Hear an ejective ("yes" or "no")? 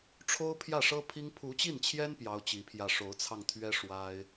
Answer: no